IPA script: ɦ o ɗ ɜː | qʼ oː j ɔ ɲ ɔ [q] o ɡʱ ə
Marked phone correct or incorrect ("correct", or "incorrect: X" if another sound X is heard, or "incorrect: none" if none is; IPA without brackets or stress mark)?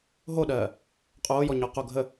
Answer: correct